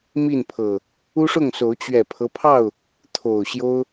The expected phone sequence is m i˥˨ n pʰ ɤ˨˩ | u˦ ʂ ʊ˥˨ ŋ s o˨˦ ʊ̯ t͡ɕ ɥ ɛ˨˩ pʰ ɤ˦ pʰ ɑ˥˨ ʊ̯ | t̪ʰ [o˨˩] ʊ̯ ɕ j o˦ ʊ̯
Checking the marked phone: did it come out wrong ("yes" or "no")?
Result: no